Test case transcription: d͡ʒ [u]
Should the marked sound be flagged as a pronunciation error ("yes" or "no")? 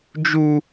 no